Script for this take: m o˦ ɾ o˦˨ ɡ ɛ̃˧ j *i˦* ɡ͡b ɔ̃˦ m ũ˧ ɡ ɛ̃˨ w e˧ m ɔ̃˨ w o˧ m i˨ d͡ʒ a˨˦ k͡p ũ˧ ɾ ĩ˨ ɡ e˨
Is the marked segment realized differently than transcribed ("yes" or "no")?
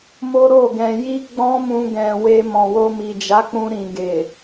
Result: no